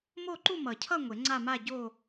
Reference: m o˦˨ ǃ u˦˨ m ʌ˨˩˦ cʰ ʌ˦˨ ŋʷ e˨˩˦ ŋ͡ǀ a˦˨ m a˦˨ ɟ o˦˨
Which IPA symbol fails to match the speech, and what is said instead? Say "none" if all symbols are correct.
none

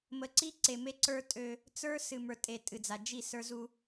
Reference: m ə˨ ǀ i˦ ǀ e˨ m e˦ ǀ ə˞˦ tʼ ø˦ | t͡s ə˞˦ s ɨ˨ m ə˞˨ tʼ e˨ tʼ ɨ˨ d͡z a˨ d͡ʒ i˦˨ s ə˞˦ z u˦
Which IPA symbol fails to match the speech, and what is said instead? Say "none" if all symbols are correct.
none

